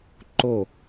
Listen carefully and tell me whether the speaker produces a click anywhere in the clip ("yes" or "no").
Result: yes